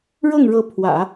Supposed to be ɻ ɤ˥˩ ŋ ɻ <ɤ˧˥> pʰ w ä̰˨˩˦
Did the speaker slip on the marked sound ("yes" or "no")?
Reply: no